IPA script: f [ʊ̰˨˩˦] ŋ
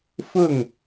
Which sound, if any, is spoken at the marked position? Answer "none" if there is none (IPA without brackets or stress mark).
ʊ˥˩